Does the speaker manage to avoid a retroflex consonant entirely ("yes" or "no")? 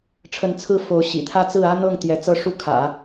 no